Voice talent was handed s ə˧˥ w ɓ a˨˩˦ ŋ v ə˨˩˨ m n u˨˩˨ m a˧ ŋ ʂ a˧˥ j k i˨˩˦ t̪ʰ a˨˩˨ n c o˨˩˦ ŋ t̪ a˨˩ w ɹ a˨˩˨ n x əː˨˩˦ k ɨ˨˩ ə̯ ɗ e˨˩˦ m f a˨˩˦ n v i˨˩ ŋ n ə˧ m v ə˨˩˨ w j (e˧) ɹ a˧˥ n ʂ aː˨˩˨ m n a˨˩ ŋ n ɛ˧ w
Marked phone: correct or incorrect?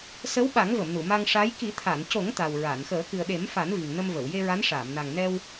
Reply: correct